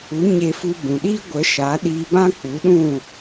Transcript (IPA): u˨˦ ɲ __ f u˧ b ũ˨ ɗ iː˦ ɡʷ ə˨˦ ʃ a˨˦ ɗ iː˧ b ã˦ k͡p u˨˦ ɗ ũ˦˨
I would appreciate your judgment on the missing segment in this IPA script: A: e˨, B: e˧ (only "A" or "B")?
B